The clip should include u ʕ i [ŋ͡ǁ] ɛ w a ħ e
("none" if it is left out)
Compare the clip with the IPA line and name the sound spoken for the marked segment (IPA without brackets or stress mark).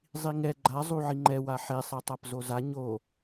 ŋ͡ǃ